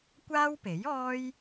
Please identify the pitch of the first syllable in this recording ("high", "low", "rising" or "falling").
high